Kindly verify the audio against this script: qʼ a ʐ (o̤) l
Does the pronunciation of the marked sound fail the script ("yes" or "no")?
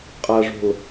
no